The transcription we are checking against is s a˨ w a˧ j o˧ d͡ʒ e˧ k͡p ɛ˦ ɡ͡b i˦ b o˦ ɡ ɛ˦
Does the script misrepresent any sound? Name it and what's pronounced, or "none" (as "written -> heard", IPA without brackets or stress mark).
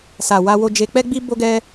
j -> w